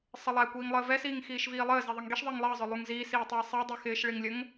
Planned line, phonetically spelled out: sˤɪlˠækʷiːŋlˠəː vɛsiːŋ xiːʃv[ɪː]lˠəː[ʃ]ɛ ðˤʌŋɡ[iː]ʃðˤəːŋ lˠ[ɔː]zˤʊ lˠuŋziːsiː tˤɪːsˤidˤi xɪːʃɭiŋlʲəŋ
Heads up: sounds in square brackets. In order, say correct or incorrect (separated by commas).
incorrect, incorrect, incorrect, incorrect